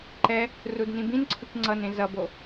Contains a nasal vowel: yes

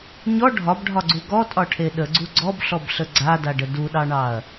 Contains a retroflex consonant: yes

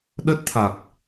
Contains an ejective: no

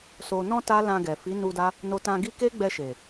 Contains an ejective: no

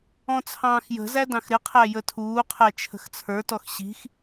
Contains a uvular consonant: yes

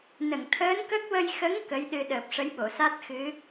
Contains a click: no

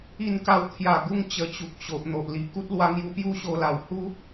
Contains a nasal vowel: no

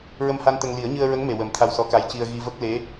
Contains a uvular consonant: no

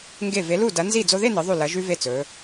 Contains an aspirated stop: no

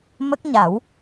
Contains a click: no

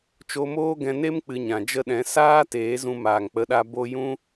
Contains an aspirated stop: no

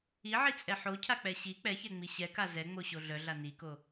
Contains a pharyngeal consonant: yes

